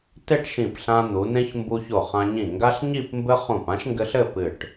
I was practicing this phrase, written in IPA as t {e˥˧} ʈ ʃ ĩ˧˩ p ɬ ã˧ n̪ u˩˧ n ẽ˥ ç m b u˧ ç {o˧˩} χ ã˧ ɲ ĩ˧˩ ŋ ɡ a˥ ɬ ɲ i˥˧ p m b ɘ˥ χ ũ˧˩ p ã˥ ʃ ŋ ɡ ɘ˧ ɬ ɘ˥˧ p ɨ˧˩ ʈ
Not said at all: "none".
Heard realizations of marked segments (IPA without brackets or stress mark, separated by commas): e˥˧, o˧˩